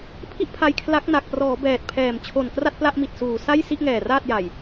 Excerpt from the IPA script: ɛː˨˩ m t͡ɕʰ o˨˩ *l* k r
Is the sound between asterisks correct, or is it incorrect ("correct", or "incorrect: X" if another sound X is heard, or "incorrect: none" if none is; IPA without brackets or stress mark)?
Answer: incorrect: n